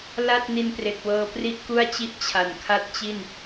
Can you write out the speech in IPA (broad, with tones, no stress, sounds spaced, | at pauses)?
l a˥˩ t̚ n i˧ n p r e˨˩ k̚ w ɤː˧ p r i˥˩ ʔ k u˥˩ a̯ t͡ɕ i˥˩ ʔ t͡ɕʰ a˨˩ n kʰ a˦˥ t̚ t͡ɕ i˥˩ n